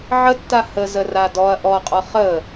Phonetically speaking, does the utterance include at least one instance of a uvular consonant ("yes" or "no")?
yes